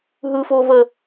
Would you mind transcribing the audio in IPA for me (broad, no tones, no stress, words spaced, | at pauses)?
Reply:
ɦɯfovə